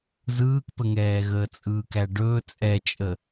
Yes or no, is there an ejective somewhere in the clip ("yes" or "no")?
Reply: yes